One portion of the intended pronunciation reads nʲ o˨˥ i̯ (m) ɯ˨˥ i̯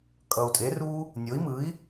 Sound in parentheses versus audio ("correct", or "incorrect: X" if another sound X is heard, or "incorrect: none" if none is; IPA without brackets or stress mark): correct